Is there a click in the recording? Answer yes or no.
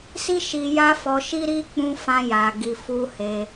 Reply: no